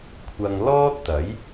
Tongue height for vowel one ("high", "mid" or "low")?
low